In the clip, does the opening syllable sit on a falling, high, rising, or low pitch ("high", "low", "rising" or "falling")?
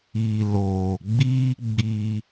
low